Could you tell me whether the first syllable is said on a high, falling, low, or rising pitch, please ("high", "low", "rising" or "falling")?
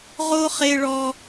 high